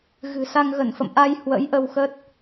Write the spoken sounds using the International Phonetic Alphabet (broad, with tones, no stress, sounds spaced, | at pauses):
ɣ ɨ̤˨˩ s a˧ ŋ ɣ ə˧˩ n f ə̰˧˨ m ʔ a˧ j h w ə̰˧˥ j ʔ ə˧ w x ə˦˥ t̚